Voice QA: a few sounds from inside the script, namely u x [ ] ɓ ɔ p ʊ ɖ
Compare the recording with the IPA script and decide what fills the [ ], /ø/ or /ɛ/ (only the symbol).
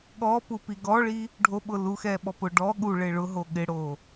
ɛ